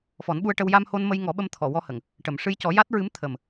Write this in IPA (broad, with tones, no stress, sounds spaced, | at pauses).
f ɔ˨˩˦ n ɓ u˧ ə̯ ʈ ə˧ w j a˧ m h o˧ n m ə˧ j ŋ ɔ˨˩˦ ɓ ə˧ m t̪ʰ ɔ˨˩˨ w ɔ˧ h ə˨˩˨ ŋ | ʈ ə˨˩˨ m ʂ ɨ˧ j c ɔ˨˩˦ j a˦˥ t̚ ɹ ɨ˧˥ m t̪ʰ ə˨˩ m